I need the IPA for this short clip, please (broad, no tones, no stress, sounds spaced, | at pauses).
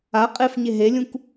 a qʼ e f ɲ e ɦ e lʲ ũ k